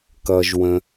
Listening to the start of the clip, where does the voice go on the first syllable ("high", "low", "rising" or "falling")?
low